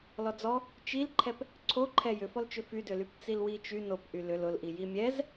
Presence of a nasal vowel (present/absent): absent